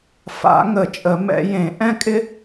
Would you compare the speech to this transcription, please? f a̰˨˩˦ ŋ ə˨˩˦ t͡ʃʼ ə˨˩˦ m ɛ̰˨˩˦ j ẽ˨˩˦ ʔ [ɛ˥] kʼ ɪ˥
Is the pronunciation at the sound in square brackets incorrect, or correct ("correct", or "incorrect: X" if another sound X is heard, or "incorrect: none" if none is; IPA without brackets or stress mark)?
incorrect: ɛ̃˥